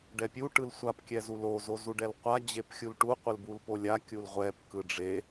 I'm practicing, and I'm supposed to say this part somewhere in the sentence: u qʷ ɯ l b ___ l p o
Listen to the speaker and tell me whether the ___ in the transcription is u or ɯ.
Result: u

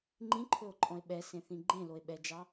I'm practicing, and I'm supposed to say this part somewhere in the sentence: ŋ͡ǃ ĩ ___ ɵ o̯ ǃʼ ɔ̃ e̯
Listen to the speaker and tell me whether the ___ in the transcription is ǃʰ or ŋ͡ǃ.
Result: ǃʰ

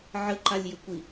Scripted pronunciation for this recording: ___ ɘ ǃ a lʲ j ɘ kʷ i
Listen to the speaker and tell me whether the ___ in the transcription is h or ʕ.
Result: ʕ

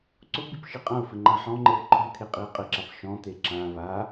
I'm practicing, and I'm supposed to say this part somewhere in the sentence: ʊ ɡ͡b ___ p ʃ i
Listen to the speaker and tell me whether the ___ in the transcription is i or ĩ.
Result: i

